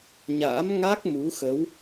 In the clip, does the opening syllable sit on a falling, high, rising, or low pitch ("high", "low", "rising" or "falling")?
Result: rising